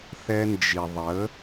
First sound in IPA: θ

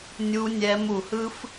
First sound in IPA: nʲ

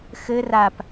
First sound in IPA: x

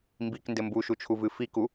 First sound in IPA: m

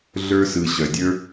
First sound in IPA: ɮ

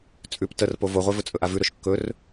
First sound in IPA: t͡sʼ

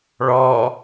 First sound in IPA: ɭ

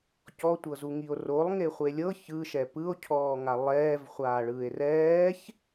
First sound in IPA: c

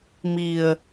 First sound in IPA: m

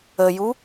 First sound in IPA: ə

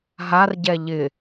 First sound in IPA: ɦ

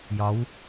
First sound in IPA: j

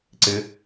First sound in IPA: ǀ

